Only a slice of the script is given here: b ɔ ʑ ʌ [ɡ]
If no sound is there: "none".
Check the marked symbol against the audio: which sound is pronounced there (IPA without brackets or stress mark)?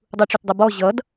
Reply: d